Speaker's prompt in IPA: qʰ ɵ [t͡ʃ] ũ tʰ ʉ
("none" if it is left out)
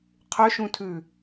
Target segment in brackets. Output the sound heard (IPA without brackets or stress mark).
ʃ